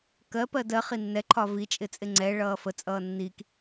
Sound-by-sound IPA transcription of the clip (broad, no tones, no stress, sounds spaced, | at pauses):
k ɜ p ɜ d ɜ χ i nː ɛ ǃʰ ɒ v i t͡ʃʼ ɪ t͡sʼ ɪ ŋ͡ǀ ɛ ɭ ʌː f ə t͡sʼ ʌː nː i k